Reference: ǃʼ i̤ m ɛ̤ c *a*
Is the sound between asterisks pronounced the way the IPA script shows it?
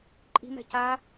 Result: yes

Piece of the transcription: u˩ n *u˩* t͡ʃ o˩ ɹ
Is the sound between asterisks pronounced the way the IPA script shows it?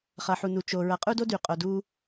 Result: yes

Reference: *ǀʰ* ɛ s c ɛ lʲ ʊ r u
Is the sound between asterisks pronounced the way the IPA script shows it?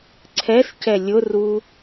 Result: yes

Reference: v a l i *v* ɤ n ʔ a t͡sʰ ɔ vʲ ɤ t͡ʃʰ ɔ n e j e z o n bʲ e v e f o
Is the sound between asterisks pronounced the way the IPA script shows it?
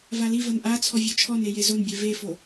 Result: yes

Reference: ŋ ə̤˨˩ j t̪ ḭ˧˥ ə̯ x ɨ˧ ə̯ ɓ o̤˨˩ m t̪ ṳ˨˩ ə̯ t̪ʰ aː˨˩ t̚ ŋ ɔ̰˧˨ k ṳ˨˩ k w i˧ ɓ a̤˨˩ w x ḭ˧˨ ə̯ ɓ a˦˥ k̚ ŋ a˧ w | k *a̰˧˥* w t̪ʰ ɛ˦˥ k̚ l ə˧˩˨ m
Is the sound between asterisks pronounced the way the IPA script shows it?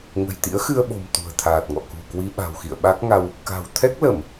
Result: no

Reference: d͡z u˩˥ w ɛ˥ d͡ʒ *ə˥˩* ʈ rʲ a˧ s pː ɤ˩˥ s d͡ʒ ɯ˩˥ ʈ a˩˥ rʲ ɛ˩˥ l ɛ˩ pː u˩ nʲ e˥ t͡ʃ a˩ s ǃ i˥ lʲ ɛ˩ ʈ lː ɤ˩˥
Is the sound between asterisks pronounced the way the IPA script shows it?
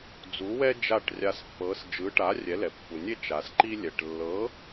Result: no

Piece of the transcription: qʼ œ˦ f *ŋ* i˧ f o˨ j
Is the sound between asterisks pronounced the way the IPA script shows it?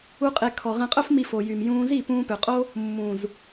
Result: no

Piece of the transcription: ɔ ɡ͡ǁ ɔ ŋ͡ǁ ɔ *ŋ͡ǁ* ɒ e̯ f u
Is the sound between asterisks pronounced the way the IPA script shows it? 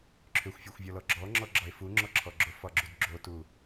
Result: no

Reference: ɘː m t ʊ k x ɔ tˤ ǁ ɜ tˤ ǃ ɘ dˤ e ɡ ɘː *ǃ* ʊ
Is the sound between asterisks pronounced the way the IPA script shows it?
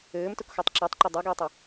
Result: no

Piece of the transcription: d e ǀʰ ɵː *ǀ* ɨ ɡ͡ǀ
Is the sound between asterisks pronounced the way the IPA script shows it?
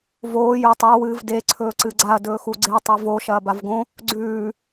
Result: yes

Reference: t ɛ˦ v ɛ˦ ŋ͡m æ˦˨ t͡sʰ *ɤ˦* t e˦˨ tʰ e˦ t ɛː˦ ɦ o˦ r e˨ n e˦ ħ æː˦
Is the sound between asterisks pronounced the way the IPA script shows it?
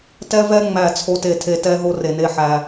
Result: no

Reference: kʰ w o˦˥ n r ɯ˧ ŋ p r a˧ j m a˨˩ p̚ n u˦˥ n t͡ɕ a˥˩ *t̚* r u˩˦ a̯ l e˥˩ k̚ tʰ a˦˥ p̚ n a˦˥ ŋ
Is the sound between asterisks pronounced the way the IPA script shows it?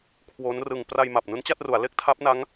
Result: yes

